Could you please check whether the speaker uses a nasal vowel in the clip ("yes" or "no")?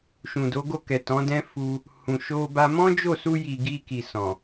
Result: yes